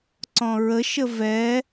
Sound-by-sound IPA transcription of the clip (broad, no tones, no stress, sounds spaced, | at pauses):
ǀ ɔ̃ ɹ ə ʃ ə v ɛ